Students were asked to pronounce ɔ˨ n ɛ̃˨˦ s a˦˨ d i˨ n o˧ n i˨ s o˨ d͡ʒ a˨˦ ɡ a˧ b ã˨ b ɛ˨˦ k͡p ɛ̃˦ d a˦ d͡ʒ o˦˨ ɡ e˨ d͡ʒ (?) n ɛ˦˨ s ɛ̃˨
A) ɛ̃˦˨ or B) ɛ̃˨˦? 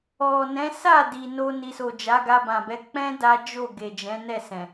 B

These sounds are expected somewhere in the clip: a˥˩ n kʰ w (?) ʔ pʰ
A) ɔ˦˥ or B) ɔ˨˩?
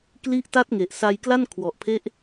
B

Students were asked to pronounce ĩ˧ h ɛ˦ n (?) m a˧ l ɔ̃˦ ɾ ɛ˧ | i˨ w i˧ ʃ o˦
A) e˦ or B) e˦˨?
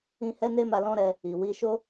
A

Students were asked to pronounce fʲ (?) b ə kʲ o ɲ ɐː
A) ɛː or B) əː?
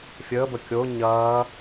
B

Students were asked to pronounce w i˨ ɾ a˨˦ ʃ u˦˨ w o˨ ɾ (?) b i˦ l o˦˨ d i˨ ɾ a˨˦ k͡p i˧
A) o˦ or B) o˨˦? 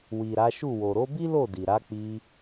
B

